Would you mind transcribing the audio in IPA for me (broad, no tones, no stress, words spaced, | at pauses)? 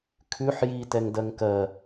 kʰʉħ ji tɛŋdɜŋkɜ